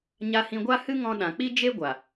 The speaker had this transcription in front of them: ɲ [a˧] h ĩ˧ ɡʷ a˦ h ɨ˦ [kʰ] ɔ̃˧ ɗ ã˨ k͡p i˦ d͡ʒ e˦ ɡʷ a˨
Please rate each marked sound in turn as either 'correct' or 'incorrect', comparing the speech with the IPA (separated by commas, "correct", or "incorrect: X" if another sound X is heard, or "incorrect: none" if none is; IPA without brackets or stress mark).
correct, incorrect: ŋ